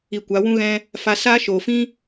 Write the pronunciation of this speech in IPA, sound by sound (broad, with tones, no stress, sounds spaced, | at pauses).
i˧ kʷ a˨˦ w ũ˦ ɣ ɛ̃˦ | f a˧ s aː˦ ʃ oː˨ f ĩ˦